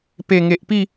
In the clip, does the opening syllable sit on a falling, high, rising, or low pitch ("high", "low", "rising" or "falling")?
low